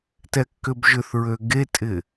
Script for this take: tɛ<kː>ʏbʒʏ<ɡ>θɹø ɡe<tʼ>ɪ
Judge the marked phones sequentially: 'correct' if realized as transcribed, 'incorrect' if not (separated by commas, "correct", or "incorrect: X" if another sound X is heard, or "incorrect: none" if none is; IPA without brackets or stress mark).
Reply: correct, incorrect: none, correct